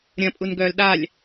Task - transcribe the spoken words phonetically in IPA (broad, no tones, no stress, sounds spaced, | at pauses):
ɾʲ ɐ̃ pʼ u n ɡ œː l ɗ a lʲ